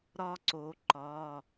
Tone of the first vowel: high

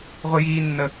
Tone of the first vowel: high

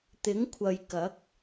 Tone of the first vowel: rising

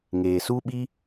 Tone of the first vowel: low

